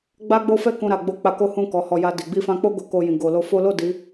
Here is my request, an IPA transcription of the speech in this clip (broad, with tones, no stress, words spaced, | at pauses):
ɡ͡ba˦ɡ͡bo˦fɛ˦ kũ˧ɾa˨ɡ͡bo˧ k͡pa˧ko˦hũ˦˨ kɔ˨˦hɔ˧ ja˧di˨ ɡ͡bi˧fã˧k͡po˦ ɡo˧ko˧jĩ˨ ɡo˨lo˧fo˦ lo˦˨ di˨˦